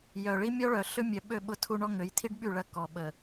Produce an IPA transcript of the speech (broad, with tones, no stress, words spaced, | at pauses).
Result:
jœ˨ɭi˦mʲɔ˦ɭœ˨ ɬʏ˦mʲœ˨ɓø˦˨ ɓʊ˦tʰu˦ɳɔ˦ ŋø˨˦jtʰi˦ɖɓy˦˨ ɭɐ˦ kɔ˨ɓə˨